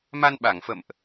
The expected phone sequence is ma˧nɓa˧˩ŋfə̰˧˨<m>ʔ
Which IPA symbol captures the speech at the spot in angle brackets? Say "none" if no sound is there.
m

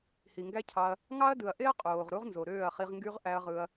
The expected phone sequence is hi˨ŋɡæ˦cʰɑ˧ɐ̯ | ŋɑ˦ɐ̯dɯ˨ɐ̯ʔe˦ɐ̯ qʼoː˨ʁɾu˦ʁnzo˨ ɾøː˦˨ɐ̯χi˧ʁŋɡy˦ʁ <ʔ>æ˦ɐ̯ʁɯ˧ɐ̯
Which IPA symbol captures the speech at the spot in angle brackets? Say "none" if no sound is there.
ʔ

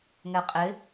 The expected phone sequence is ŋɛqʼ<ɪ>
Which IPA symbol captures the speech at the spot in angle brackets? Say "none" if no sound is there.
ɪ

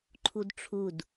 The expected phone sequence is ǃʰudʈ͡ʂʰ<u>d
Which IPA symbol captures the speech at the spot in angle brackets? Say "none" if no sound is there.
u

